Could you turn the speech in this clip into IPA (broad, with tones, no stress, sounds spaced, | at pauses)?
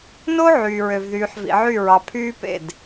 n o˦ ʕ yː˨ ɹ ø˨ v ð yː˨ ħ v ḭ˨ ʕ y˦˨ ɹ ɑ˨ pʰ yː˦ p ḛ˦˨ d